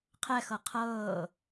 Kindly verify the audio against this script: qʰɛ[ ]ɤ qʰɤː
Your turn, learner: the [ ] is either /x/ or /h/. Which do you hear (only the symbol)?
x